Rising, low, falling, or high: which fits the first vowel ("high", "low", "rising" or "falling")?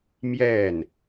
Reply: falling